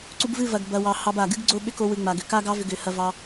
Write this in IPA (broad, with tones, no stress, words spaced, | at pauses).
ǀu˧bvɨ˦˨vɐ˨ɡ bɐ˨wɑ˨ hɑ˧ba˨ɡɨ˦ɡ ɡ͡ǀo˦ɓʏ˦ko˧wɨ˨ ŋ͡ma˨ɡʏ˨ka˦ɡɑ˦ vʏ˧ɡʏ˨˦hɐ˧vɑ˧